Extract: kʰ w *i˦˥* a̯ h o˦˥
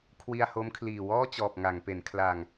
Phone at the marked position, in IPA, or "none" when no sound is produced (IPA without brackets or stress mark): i˧